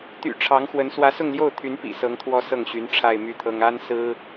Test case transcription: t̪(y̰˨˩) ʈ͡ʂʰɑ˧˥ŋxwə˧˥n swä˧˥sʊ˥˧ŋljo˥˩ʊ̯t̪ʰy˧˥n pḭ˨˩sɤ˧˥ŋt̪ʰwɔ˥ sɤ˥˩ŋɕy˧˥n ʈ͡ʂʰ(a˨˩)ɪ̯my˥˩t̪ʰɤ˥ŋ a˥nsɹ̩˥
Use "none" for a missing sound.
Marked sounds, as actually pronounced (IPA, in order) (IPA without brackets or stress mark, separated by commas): y̰˨˩, a˥˧